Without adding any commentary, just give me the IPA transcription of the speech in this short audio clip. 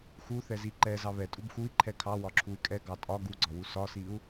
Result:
x u θ ɛ z i ǃ ɛ z ɑ β ɛ tʼ u b x u i̯ ǃʰ ɛ kʰ ɑ w ɒ ǁʰ u y̯ kʼ ɛ ɡ ɑ tʼ ɒ ɡ u ɡ͡ǀ ɒ w u s ɒ s i u̯

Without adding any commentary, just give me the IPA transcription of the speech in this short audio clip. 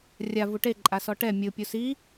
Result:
rʲ a v u ʈ e ǃʼ a s ɔ ʈ ɛ mʲ ɯ pʲ u s i

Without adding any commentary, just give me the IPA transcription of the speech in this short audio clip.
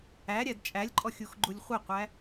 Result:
æ ɾʲ æ d t͡ʃʼ æ lʲ ǃʼ ɔ xʲ u x ɡ͡ǃ u lʲ χʷ e qʷ æ

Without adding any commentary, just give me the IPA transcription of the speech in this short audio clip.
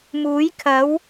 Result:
m uː˨˥ j kʰ ɐ˨˥ w

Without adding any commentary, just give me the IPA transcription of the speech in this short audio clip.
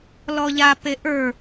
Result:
l ɔ ʎ a p e ʔ ə˞

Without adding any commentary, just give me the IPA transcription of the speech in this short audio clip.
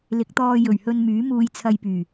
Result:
l ɪ˨˥ k̚ t̪ ɔː˧ j ɵ˨˩ ɥ h ɵ˧ n m yː˨˥ m uː˧ j t͡sʰ ɐ˧ j p yː˨˩

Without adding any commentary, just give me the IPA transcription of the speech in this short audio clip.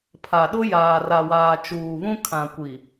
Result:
pʰ a˨ ɗ ʊ˦ j aː˨ r a˨ w aː˨ t͡ʃ uː˨ β ũ˦ kʰ ã˨ kʷ i˨

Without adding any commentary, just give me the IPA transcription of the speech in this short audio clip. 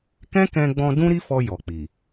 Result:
k ɛ̃˦ k ɛ̃˧ ɡ͡b ɔ̃˧ d ũ˦ ɾ i˦ f ɔ˧ j ɔ˨ k͡p i˨

